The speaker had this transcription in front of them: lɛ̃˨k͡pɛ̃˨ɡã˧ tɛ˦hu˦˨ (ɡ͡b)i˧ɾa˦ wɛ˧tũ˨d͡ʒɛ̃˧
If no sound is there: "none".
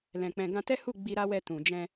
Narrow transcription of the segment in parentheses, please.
ɡ͡b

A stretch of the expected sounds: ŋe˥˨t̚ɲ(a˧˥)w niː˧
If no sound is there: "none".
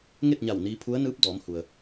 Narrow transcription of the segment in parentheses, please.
a˧˩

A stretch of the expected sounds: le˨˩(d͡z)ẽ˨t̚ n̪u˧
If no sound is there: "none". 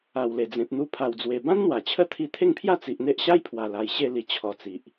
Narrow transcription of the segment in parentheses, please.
d͡z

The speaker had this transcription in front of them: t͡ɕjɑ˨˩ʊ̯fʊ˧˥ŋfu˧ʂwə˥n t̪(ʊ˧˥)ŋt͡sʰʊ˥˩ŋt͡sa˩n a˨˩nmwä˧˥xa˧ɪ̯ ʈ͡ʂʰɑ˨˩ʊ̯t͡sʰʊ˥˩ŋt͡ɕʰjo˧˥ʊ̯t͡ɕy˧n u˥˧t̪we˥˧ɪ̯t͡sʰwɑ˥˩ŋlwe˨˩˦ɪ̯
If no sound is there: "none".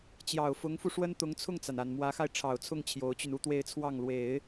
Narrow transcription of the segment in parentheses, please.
ʊ˧˥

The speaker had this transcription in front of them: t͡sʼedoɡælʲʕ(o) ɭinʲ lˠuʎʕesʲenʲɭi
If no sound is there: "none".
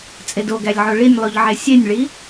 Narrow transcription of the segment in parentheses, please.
o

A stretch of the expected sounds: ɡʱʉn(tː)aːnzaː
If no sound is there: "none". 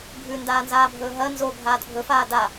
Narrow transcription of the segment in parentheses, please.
d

